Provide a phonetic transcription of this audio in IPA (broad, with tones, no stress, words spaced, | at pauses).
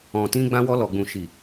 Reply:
ɔ̃˨tĩ˧ ɡ͡bã˧wɔ˧lɔ˨ɡ͡bũ˨ ʃi˨